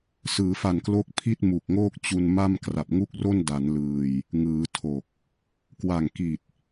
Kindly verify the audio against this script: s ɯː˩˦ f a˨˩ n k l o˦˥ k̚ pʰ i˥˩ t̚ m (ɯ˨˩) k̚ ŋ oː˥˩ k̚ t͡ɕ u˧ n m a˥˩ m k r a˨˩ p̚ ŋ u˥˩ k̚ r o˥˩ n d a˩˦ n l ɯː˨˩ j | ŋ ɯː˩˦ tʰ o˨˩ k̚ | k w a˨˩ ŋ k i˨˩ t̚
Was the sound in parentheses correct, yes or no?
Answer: no